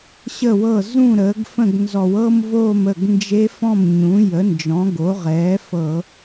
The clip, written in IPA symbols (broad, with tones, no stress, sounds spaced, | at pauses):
ɕ ə˥˩ w ɤ˥˩ z ũ˥˩ ɾ əː˩˥ ɡ f ə̃˥˩ ɡ n z ɔ˧˩˧ w ɤ˥˧ m v oː˥˩ m ə˥˩ ɡ n d͡ʒ e˦˥ f ɔ̃˥˩ m ɲ ũ˩˥ j ə˩˥ n d͡ʒ ɔ̃˩˥ ɡ o˩˥ ʁ ɛː˩˥ f ɤ˧˩˧